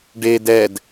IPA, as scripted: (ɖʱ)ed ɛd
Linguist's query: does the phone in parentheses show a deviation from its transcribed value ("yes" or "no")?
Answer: yes